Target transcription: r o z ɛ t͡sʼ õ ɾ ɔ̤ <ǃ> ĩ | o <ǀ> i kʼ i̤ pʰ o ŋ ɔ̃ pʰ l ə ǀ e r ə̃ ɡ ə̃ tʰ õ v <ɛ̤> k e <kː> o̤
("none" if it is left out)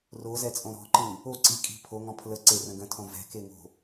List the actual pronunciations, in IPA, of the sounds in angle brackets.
ǃ, ǀ, ɛ̤, ŋ

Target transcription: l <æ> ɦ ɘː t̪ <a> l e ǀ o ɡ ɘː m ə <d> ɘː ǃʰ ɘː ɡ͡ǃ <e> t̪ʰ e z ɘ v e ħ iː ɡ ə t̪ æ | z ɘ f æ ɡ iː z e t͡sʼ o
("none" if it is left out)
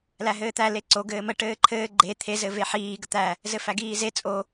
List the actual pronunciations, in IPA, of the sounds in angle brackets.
æ, æ, ʈ, e

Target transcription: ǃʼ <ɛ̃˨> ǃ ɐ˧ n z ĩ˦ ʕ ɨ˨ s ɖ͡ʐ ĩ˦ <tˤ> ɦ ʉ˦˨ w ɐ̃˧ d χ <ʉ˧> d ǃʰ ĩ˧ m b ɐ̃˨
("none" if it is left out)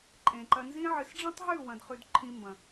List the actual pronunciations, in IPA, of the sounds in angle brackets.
ẽ˨, tˤ, ʉ˧

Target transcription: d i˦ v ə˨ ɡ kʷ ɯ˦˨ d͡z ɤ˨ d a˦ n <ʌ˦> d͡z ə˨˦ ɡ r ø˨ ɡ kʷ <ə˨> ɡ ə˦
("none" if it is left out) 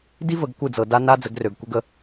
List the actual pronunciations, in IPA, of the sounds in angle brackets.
a˦, ə˦

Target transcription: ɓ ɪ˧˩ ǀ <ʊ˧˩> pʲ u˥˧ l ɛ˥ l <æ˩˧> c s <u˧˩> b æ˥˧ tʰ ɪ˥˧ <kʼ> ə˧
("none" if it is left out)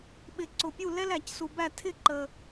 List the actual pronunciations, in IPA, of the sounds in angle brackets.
ʊ˧˩, æ˩˧, u˧, ǃ

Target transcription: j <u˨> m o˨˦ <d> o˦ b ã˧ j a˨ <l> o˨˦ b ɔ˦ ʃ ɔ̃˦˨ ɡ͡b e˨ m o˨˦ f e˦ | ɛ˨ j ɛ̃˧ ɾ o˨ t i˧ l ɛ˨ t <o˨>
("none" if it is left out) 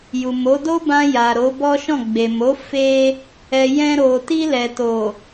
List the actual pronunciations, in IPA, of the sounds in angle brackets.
u˨, d, ɾ, o˨

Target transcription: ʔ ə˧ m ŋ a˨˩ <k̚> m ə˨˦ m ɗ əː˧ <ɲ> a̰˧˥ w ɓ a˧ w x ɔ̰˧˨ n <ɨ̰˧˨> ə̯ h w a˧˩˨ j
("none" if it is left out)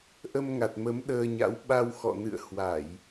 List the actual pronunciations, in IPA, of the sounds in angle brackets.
t̚, ɲ, ɨ̰˧˨

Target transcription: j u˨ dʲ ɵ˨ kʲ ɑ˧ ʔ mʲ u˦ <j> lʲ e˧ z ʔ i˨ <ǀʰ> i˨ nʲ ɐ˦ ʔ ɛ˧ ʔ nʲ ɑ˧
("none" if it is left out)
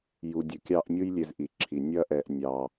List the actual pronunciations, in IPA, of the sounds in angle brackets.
j, ǁʰ

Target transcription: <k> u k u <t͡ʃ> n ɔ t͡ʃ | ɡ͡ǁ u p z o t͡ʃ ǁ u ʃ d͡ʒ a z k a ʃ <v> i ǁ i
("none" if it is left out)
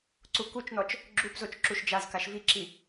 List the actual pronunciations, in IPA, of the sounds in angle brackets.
ǀ, t͡ʃ, v

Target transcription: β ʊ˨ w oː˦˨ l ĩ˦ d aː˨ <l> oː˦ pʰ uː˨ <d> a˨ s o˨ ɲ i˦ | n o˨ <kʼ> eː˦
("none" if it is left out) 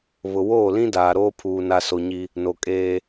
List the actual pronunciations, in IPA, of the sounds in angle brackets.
ɾ, n, kʼ

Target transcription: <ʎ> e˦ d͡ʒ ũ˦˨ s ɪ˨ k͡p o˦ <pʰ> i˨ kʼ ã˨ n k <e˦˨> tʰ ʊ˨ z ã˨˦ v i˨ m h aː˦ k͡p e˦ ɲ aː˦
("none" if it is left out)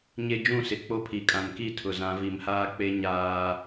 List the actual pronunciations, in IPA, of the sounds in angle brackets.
ɲ, pʰ, i˦˨

